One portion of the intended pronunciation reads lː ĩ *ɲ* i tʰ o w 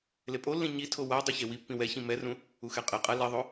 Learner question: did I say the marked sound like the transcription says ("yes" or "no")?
yes